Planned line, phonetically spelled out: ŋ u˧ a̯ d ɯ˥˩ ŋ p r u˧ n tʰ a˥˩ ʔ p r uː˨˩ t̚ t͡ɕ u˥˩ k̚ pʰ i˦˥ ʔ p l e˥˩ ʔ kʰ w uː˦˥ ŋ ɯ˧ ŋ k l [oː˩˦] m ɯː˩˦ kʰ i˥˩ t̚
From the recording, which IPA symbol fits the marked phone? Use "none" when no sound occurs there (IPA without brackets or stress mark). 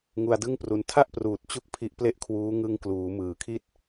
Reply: uː˩˦